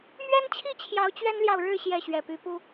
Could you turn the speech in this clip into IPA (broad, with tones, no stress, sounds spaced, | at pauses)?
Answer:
m ɥ ɛ˦ n t͡ɕʰ i˥˨ t͡ɕʰ j ɑ˨˦ ʊ̯ t͡ɕ ɥ ɛ˦ n l j ɑ˨ ʊ̯ ɻ ɻ̩˥˨ ɕ j ɛ˥˨ ɕ ɥ ɛ˨˩ p y˨˦ p u˦